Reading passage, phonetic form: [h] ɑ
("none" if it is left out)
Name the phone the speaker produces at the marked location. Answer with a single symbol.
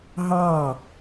ɦ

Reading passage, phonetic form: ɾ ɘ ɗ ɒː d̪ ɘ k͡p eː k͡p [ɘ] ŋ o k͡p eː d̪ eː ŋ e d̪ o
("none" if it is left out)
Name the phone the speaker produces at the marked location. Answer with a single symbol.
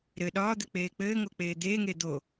ɘː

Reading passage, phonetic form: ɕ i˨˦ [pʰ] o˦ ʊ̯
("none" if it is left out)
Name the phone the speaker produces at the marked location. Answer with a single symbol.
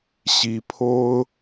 pʰ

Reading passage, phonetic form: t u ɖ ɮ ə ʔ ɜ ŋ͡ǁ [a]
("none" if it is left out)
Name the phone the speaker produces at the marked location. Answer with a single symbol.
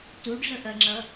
ʌ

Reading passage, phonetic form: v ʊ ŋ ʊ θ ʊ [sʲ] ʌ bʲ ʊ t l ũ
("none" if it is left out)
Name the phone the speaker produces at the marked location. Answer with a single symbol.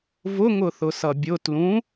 s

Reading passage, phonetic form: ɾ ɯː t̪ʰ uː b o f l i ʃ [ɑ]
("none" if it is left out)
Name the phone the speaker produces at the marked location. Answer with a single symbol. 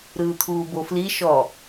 ɔ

